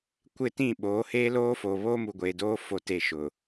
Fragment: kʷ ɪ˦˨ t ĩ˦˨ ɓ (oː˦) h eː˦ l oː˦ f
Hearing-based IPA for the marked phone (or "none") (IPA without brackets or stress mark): oː˨˦